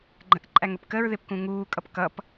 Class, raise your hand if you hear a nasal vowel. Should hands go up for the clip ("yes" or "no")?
yes